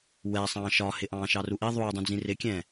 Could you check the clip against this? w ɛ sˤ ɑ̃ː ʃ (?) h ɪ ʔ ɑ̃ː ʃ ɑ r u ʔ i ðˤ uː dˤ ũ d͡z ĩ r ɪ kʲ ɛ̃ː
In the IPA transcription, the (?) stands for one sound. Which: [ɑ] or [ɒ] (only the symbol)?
ɒ